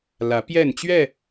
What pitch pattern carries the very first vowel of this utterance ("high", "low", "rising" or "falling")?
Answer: rising